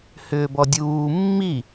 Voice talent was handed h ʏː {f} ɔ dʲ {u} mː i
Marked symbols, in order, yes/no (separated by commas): no, no